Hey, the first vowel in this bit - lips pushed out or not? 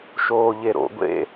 yes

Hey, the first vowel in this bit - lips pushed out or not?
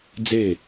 no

